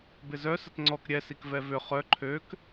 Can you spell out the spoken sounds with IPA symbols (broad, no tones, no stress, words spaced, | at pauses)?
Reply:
bɪzœ sətŋ͡ǀɔk ɾʲɛ sikvɛvʏ χœ ǃʰøk